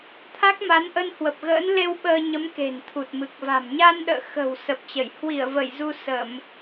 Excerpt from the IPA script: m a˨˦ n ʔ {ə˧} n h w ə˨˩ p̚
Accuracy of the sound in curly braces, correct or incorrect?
correct